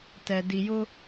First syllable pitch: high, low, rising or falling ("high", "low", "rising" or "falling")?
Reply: low